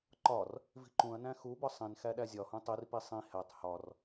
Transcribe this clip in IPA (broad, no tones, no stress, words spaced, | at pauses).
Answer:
ǃɒr | vi̤ǃũɐ̯næ̃ xubɒ sˤĩn xæɗæzʲɒhũ tˤirpi sˤĩ hætˤ hɒr